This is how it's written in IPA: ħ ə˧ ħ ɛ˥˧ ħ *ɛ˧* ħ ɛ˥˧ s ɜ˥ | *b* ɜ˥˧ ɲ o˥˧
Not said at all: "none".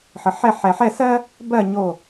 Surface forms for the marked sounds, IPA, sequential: ɛ˧, b

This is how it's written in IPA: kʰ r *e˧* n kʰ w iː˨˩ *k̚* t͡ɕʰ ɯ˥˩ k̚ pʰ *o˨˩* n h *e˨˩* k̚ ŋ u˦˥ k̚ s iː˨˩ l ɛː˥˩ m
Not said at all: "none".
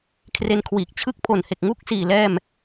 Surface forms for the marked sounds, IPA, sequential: e˧, k̚, o˨˩, e˨˩

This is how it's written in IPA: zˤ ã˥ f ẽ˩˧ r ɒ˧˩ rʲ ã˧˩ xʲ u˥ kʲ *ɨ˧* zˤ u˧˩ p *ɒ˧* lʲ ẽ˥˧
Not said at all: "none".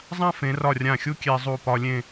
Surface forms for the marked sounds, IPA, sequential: e˧, ɒ˧

